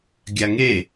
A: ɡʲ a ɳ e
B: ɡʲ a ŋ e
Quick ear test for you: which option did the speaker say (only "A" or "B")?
B